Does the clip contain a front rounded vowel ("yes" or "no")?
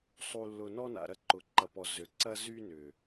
yes